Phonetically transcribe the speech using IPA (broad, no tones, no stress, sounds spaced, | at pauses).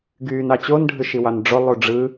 ɡ yː n ɑ t͡ɕ o n ɖʱ ɯ ʃ i w ɑ n ɖ͡ʐ o lˠ u ɖ͡ʐ ɯ